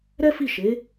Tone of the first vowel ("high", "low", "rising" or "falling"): high